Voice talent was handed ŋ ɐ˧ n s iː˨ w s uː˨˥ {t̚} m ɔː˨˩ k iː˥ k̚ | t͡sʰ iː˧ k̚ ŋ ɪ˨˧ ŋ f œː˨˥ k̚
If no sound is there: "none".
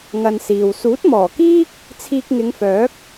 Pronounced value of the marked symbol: t̚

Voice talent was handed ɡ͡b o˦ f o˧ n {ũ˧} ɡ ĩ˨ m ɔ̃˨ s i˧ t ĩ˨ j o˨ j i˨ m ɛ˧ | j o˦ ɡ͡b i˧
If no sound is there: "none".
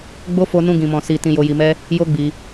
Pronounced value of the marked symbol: ũ˧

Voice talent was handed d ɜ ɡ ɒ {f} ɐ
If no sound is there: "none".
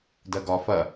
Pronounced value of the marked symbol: f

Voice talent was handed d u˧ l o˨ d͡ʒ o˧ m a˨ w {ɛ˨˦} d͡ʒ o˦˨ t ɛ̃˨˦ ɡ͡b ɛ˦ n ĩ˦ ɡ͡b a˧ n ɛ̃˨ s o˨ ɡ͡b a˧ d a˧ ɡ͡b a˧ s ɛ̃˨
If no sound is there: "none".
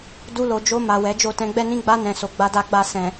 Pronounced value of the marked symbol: ɛ˨˦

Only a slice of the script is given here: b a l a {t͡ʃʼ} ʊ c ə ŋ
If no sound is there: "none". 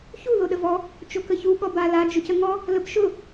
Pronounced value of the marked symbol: d͡ʒ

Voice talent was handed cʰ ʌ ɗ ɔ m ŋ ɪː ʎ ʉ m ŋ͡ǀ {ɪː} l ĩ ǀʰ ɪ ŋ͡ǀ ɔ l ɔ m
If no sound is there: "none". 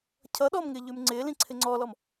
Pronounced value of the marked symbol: ɪː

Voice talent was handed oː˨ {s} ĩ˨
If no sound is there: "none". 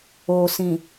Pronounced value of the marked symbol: s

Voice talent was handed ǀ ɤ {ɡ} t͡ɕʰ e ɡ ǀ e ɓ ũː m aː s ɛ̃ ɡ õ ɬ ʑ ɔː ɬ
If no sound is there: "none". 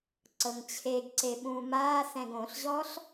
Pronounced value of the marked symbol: ŋ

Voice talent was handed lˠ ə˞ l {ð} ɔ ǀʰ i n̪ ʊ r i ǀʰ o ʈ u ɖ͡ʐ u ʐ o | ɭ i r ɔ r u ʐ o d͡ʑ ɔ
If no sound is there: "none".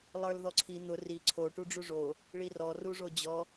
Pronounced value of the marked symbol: ð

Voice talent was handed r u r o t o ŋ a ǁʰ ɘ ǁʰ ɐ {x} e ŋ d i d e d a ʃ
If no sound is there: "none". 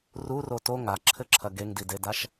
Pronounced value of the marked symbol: ɡ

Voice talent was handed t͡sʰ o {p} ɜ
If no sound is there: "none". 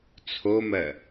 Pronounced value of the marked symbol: m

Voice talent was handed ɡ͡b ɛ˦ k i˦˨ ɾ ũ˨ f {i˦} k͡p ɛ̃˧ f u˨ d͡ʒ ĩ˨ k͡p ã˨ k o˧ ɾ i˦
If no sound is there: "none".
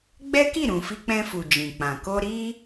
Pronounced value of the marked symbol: i˧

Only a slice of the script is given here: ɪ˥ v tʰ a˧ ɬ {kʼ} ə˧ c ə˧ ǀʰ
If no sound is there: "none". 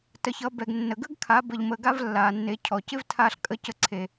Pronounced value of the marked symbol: kʼ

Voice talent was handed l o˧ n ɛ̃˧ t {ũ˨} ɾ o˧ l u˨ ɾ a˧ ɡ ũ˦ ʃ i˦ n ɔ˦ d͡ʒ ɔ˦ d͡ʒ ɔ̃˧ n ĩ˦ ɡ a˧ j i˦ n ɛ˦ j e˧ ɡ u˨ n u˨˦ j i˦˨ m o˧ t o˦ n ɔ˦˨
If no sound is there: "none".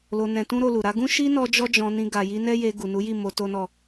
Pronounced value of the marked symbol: ũ˦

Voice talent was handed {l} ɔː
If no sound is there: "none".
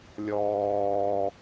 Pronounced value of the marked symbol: lʲ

